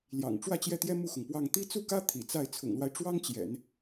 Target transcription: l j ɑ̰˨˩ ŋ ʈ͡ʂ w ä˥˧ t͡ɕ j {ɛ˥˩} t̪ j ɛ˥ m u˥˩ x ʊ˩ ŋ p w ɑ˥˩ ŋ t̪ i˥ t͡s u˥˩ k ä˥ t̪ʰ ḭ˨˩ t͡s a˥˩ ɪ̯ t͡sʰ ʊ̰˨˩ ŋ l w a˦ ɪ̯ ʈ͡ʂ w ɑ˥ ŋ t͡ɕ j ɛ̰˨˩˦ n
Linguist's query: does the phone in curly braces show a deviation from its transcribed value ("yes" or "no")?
no